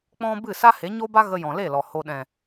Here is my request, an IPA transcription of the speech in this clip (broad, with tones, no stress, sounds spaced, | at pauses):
k͡p ɔ̃˧ b ɨ˦˨ s a˦ h e˨˦ ɲ o˦ b a˦ ɣ ə˧ j ɔ̃˨ l e˦˨ l ɔ˨ h o˨ ɗ ɛ̃˨